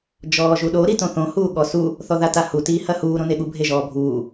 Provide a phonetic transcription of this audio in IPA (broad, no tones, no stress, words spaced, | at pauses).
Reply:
d͡ʒɔːʒuɗo ɾitõθõ huːɠɔsu | θɔðatahu tiːhɐhuː ɾõneɠu bʱeʒɔːbʱuː